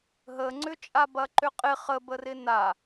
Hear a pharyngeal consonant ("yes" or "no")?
no